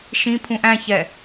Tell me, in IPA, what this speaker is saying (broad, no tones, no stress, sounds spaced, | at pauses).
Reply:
ʃ ĩ pʰ ũ ʔ æ̃ ç ɛ